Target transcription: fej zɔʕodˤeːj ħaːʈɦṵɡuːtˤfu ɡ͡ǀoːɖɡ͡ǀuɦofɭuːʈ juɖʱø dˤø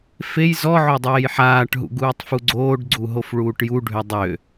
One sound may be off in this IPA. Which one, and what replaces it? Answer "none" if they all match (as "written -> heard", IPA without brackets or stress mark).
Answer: none